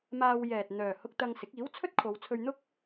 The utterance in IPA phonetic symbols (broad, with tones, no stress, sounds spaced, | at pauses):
m aː˧ w j ɛː˨ t̚ n̪ œː˨ h ʊ˧ k̚ t̪ ɐ˧ ŋ s ɪ˨˥ k̚ iː˨˥ w t͡sʰ ɵ˥ t̚ kʰ o˨˧ w t͡sʰ ɵ˧ ɥ n̪ ʊ˥ k̚